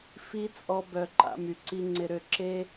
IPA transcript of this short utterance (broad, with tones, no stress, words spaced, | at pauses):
fi˦t͡sʼɔ˧bœ˨ ǃa̰˧my˨ǀi˧ ŋ͡ǀɪ˨ɾø˨ ǁe˦